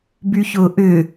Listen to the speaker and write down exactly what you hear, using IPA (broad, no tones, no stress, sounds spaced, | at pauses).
b y ç ʊː ʔ ʏ